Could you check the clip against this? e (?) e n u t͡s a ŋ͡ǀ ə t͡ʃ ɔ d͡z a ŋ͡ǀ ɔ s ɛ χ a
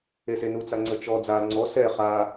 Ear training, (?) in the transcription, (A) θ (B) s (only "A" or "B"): B